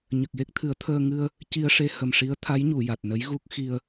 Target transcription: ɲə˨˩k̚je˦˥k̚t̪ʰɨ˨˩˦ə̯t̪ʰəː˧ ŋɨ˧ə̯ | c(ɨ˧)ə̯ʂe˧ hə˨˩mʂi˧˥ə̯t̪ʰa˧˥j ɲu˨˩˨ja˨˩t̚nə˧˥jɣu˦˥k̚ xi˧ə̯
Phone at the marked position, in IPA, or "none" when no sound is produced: i˧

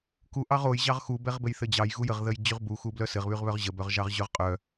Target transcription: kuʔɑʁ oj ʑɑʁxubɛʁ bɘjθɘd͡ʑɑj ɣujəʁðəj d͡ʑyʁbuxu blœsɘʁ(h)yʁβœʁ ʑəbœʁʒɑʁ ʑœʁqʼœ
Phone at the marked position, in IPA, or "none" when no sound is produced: β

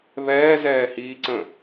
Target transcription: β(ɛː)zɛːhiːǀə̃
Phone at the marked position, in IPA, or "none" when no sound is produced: ɛː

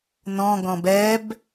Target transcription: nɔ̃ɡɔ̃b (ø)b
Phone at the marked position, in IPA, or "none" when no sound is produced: ɛ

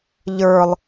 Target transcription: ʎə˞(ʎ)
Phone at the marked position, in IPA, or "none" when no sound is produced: lˠ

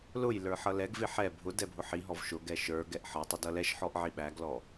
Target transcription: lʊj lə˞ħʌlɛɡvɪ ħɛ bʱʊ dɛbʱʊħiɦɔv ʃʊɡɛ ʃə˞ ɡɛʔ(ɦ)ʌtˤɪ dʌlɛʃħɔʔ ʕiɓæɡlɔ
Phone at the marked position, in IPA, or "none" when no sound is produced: ħ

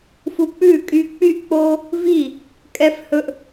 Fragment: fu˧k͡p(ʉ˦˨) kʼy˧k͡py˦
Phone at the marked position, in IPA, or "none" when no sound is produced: ʉ˦˨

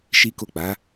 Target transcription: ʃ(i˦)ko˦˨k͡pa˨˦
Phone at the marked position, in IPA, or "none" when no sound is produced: i˦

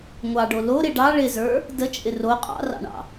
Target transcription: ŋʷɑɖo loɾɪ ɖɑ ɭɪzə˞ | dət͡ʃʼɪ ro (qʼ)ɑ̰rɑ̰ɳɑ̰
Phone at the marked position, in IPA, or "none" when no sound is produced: qʼ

